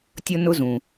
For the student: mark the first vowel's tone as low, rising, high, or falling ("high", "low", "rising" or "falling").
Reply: high